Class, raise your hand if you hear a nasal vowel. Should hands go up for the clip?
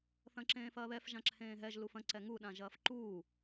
yes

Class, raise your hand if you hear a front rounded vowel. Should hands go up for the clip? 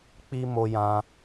no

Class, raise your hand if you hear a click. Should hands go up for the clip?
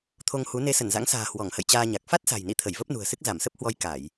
no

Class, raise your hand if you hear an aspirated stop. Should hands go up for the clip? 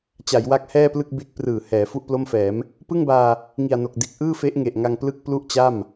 no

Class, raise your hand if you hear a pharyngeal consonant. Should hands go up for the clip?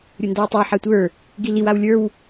yes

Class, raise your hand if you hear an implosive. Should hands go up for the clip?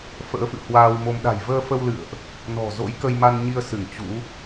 yes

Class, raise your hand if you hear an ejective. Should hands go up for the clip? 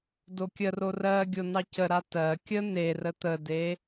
no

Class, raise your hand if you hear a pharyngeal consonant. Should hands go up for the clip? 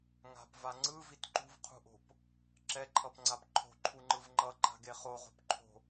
no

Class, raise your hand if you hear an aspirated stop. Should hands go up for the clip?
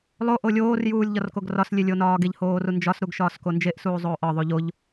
no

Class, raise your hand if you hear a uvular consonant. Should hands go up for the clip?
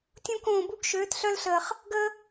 yes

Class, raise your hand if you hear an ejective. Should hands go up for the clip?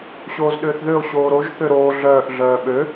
no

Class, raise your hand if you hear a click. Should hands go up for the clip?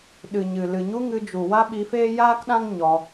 no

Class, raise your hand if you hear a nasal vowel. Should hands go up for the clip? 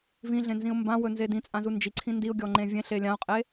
yes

